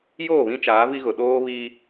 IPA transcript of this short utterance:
j oː˦˨ β ĩ˦ t͡ʃ aː˨˦ v i˦ ɣ ʊ˨ ɗ oː˦ β iː˦

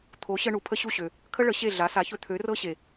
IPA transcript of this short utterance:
t̪ʰ o˩˥ ɕ ə˧ ɳ u˩ pʰ ə˥ ɕ u˥˩ ɕ ø˩ | kʰ ə˥ ɭ ə˩˥ ɕ e˥˩ ɮ a˩˥ s a˩˥ ç ɵ˧ t̪ʰ ø˩˥ r ɤ˥ ɕ e˩

